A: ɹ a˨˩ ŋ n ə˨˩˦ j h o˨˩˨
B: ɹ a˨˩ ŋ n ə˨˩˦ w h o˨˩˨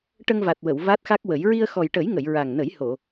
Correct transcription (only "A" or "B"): A